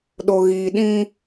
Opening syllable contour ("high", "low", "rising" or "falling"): low